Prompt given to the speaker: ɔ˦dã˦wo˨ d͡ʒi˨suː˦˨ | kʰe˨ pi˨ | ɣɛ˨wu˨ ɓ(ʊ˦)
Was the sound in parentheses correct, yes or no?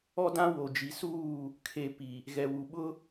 yes